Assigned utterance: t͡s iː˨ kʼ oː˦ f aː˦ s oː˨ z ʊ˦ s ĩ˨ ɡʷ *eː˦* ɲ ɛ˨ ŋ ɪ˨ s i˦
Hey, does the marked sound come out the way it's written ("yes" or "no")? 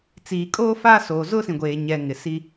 no